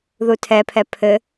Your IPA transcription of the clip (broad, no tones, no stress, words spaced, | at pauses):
ðutʰɛpʰɛ pʰɘ